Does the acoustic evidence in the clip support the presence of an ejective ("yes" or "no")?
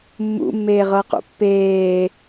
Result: no